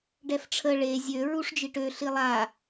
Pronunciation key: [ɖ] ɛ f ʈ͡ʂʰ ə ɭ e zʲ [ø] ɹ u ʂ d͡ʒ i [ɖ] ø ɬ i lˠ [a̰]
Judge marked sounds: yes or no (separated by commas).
yes, yes, no, no